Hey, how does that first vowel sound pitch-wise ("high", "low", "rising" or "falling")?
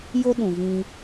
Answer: high